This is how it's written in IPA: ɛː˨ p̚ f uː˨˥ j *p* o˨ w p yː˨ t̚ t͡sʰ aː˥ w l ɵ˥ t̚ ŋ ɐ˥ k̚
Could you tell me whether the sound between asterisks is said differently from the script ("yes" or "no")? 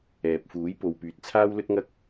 no